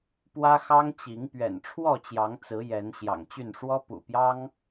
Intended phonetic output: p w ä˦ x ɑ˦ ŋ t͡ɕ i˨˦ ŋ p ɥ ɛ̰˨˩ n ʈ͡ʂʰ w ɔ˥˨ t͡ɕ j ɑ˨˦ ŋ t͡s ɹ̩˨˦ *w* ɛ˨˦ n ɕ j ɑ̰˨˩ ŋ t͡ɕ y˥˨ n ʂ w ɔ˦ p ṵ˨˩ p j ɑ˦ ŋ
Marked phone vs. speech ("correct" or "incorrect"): incorrect